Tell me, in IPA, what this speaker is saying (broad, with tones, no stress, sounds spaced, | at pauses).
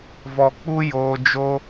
v ɔ˨ k͡p u˦ j oː˧ d͡ʒ o˦